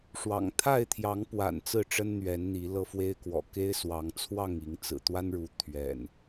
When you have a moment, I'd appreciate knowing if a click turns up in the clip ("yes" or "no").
no